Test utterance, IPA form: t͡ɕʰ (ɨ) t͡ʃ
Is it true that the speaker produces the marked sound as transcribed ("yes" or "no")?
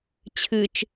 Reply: yes